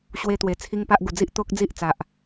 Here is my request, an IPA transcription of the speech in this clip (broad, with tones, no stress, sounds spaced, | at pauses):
ɕ w e˧ t̪ w e˨˩ t͡sʰ i˦ ŋ p a˦ ʔ ɡ u˨˩ d͡z i˦ ʔ t̪ o˦ k̚ d͡z i˦ ʔ t͡s a˨ ʔ